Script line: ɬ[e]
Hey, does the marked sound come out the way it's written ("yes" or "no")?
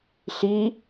no